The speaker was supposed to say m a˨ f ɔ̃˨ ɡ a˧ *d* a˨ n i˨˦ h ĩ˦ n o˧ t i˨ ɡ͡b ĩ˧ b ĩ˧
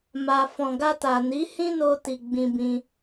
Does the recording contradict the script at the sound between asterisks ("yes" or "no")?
yes